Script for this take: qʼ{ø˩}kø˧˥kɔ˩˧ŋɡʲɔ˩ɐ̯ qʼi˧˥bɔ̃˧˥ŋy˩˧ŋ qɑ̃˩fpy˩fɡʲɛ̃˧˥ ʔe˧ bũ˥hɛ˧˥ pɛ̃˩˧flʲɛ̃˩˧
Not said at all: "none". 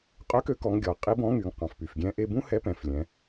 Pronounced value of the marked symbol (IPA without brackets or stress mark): ø˧˥